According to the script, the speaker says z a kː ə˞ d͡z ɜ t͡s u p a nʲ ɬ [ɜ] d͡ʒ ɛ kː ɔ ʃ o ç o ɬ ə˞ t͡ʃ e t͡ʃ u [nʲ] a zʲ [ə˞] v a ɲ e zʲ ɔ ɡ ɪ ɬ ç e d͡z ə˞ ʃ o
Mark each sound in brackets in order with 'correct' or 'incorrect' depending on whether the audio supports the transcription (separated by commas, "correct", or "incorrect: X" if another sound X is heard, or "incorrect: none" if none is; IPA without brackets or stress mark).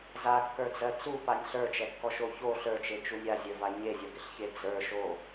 incorrect: ə˞, correct, correct